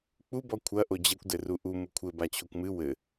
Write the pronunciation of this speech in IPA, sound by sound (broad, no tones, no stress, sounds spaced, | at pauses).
k͡p u b ɔ kʷʰ ɐ ʔ o d͡ʑ ɛ kʷ d ɘ r u ʔ u m u kʷʰ ɘ b a t͡ɕʰ o kʷ m ɨ w ɘ